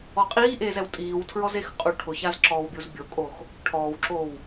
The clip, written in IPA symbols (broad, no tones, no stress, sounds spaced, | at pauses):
ɔ qʼ iː ʔ eː z ɛ w tʼ iː w tʰ ɹ ɔ z e x qʼ u ʈʰ ʊ ç a z ǁ ɔː w bʲ u z bʲ o kʼ oː x | ʈʰ ɔː w ǁ oː w